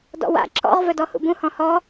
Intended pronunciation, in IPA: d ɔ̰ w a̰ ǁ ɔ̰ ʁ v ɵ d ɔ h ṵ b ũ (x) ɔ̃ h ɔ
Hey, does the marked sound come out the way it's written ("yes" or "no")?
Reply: no